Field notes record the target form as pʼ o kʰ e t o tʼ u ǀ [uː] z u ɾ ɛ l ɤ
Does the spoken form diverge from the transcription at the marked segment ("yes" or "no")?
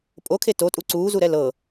no